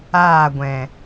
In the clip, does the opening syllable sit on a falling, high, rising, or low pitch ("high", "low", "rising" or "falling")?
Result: falling